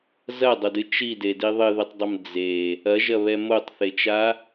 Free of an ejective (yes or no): yes